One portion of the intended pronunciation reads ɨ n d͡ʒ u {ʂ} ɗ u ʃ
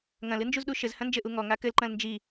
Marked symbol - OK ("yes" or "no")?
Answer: no